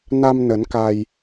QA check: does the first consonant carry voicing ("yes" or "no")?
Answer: yes